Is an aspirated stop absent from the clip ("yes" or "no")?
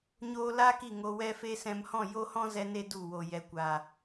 yes